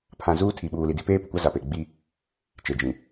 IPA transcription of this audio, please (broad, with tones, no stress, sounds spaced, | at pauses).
pʰ ã˨ z uː˦ tʰ i˨ ɓ uː˨ l i˨ d i˦ p eː˦ p ʊ˨ kʷ a˦ z a˨ p e˨ ɡ͡b i˦ | t͡ʃ e˨ d͡ʒ ĩ˨